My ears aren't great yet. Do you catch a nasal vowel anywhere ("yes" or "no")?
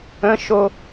yes